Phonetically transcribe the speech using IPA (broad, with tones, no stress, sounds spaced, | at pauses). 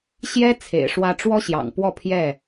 ɕ j ɛ˦ t͡sʰ ḛ˨˩ ɪ̯ ʂ w ä˦ ʈ͡ʂ w ɔ˦ ɕ j ɑ̰˨˩ ŋ p w ɔ˥˨ pʰ j ɛ˥˨